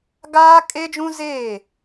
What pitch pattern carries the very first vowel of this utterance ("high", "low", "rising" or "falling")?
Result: high